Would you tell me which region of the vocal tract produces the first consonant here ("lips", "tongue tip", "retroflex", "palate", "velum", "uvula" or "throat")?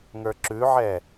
velum